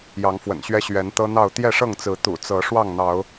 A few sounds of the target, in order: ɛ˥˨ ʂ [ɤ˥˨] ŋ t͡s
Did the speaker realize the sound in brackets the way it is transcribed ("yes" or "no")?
yes